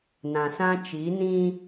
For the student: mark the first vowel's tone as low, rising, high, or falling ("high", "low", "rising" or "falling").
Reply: low